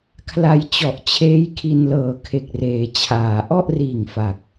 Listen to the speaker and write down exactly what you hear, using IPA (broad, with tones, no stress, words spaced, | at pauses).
kʰla˧jt͡ɕɔ˨˩ʔt͡ɕʰeː˦˥jkʰi˧n lɤː˨˩kʰe˨˩k̚reː˩˦t͡ɕʰaː˩˦ ʔɔ˥˩ʔriː˨˩ŋ fa˨˩k̚